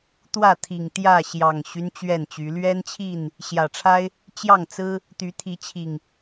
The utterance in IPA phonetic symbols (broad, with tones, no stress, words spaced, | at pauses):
t̪wä˥˨t̪ʰi˨˩ŋt̪jä˥˨ ɕjɑ˨˩ŋɕy˦n t͡ɕɥɛ˥˨nt͡ɕy˨˦ lɥɛ˦nt͡ɕʰi˥˨n | ɕjä˨˩ʈ͡ʂʰa˦ɪ̯ | t͡ɕjɑ˥˨ŋt͡sɹ̩˦ | t̪y˨˦t̪ʰi˨˦t͡ɕʰi˨˩ŋ